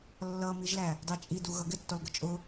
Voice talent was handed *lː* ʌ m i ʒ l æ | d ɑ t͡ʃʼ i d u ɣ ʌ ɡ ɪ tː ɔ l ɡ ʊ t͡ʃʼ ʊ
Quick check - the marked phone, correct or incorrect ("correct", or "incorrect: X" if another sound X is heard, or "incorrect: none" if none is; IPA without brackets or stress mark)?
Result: correct